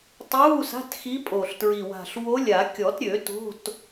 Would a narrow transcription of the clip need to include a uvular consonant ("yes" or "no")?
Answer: no